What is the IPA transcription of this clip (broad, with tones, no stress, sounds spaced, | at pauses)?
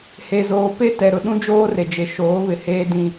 h e˨ z oː˨ p e˦ t ɛ˨ ɾ ʊ˨ ɗ ũ˦ d͡ʒ oː˦ r e˨ d͡ʒ e˨ ʃ oː˨˦ β ɪ˨ h eː˦ d ĩ˦